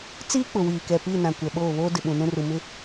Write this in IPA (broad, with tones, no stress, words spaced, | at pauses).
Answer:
t͡siː˦k͡pʊ˨wiː˨kɛ˨ pi˦˨nã˨ kʷɛ˨ɓoː˦˨ βoː˦ dɪ˨ɓũ˨nũ˦ru˨ mɪ˦